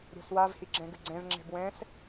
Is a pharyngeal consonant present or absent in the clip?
absent